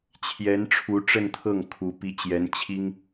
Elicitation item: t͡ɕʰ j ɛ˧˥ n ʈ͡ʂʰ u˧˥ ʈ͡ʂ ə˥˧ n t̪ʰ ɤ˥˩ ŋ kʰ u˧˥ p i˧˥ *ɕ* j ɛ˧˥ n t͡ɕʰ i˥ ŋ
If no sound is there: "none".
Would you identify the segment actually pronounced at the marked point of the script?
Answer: t͡ɕ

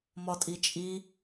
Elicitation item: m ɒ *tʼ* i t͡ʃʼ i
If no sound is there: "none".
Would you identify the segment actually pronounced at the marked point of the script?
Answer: tʼ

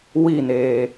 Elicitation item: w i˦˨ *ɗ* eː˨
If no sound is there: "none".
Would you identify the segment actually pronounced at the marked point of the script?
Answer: n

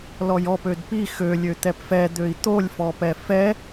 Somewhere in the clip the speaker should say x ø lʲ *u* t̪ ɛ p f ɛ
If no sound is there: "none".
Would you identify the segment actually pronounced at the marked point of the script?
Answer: ø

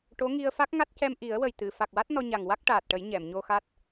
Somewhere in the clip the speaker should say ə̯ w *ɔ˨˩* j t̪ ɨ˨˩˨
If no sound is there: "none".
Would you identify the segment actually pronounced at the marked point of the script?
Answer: ə˨˩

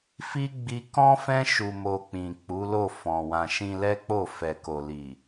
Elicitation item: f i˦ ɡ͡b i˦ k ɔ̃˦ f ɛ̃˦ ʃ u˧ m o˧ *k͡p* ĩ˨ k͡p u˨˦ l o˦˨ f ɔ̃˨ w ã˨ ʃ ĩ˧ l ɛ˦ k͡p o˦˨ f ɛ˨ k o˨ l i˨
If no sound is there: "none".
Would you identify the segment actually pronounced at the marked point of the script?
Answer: k͡p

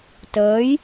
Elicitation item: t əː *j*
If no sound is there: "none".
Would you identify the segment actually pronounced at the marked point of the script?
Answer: j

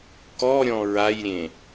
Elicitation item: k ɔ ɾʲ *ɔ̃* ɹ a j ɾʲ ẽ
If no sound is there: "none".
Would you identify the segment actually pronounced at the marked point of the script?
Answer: ɔ̃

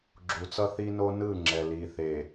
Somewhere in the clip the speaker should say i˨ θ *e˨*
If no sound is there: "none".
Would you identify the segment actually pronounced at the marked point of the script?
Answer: e˨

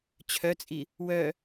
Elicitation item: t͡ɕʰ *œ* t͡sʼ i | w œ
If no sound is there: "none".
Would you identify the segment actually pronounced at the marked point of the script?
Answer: œ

